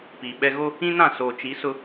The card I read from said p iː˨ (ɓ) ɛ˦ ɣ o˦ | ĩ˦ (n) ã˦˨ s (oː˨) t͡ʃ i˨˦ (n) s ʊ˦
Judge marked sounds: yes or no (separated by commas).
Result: yes, yes, yes, no